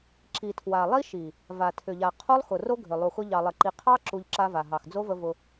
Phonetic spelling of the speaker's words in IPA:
ǁ i˨ tʰ w a˨ lˠ i˦ ʃ i˨ | v a˨ tʰ ʏ˨ ʎ a˨ qʰ o˦ lˠ x ʊ˨ r o˦ ɡʱ ʏ˨ lˠ u˨ x ʊ˧ ʎ ɑ˨ lˠ ə˨ ǃ i˨ qʰ ɑ˦ ǁ u˧ ʎ ǁ a˧ v a˨ ɦ ɑ˨ x d͡z o˦ v ə˧ v ʊ˧

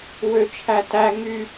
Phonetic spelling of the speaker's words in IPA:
w ø t͡ʃʰ æ t æ ŋ y

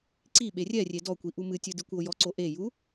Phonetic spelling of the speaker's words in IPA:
ǀ i ɓ e rʲ ɛ rʲ e d ɔ kʷ i ʔ u m ɨ tʲ ɨ d ɨ kʷ o j ɔ ǀ o ʔ e j u

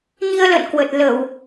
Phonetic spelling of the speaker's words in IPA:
ɲ i˧ ə̯ l ə̰˧˨ n k w ə˨˩ t̚ l ə˧˩˨ w

